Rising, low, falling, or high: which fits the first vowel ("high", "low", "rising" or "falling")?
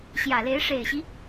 low